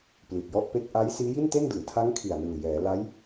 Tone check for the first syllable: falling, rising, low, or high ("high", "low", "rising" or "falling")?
low